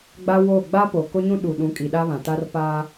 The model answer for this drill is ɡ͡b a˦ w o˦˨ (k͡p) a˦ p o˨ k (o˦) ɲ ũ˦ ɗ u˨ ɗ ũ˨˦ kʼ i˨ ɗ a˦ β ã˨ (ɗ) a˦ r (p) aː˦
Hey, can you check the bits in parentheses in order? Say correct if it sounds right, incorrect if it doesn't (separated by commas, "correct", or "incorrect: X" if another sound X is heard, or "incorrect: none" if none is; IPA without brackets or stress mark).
incorrect: ɡ͡b, correct, incorrect: t, correct